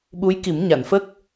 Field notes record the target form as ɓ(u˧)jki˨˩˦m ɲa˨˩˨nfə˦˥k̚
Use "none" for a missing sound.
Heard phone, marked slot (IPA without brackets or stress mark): u˧˥